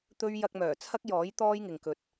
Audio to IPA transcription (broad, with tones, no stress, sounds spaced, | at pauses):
t̪ ɵ˥ ɥ j ɐ˧ k̚ m œː˨˩ t͡sʰ ɐ˥ k̚ j ɔː˨˥ j t̪ ɔː˥ j ŋ ɪ˨ ŋ k ɵ˨˥ t̚